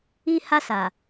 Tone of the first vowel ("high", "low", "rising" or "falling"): high